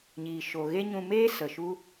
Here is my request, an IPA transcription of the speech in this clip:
ɲiː˨ʃo˨ ɣe˦ɲũ˧meː˦ sə˨ʃu˦

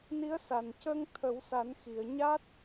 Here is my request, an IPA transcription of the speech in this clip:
ni˧˥ə̯sa˨˩n cə˧ŋ t̪ʰə˨˩˦wsa˨˩˦nxi˨˩˨ə̯ ɲa˦˥t̚

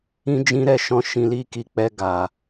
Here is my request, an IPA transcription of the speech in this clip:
ĩ˦d͡ʒĩ˦ ɾɛ˦˨ʃɔ̃˧ ʃĩ˧li˦ ki˧k͡pɛ˧ ɡa˨

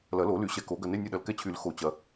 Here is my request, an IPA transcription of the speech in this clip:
lɐ˨˩˦lo˨˩˦ly˨˩˦ ɕɛ˨ko˨˩˦ɡɐ˨nɪ˧˥˧ nʲʊ˦˨ɗɐ˨lkɛ˦˨t͡ɕʰy˨˩˦l xo˨˩˦t͡ɕɐ˨

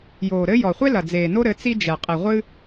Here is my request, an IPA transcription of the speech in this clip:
joː˨ɾɘ˦ jɔ˨χʷe˦lɐ˨d͡zeː˨ no˦ɾɘ˨˦ t͡si˦ d͡ʒɛ˨ qʼi˨ʁʷɨ˦

